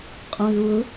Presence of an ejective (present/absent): present